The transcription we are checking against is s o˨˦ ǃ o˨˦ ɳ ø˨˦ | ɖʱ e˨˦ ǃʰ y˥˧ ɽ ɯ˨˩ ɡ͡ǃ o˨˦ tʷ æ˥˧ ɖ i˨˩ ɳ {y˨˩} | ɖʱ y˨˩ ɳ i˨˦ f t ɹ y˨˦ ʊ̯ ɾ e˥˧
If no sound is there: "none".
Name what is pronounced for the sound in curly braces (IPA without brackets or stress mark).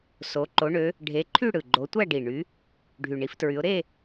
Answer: y˨˦